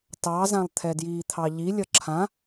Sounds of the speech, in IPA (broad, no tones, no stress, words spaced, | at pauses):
tɑzãlˠ t̪ʰɛdjiːt̪ʰɑʎi lʲʌǁʰã